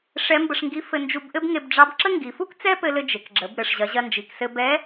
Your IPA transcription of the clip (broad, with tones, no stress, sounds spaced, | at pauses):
ʂ ɛ˧˥ m b ə˧ ʂ ŋ ɡ i˧˥ f ɘ˧ n d͡ʒ u˧ b ʔ ɘ˥ b ŋ e˧ b ɖ͡ʐ ɑ˧˥ b ǁ ə˥ ŋ ɡ i˩˧ f u˥ k t͡s ɛ˥ p ɘ˧ l ɘ˧ d͡ʒ e˩ k ɡ͡ǁ ə˩˧ b ɾ ɘ˩ ʂ ʑ ɐ˩˧ ʑ ɐ˧ n d͡ʒ i˩ k s ɘ˧ b ɛ˧˥